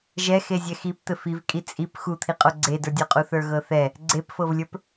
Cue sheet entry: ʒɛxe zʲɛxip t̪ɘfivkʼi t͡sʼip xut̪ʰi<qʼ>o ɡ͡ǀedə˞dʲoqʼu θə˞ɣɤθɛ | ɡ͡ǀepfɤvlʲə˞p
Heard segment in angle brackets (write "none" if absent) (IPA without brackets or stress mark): qʼ